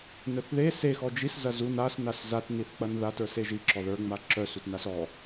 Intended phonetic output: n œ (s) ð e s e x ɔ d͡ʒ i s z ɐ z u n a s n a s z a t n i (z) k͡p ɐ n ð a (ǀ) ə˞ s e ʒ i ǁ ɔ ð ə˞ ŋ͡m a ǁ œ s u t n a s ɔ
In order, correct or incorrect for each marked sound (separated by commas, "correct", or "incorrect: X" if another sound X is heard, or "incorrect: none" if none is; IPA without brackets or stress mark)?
incorrect: θ, incorrect: θ, incorrect: t